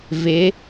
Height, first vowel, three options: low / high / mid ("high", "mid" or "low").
high